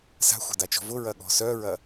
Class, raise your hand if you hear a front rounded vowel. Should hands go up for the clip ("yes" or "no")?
yes